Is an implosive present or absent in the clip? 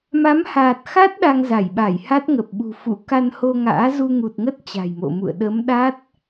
present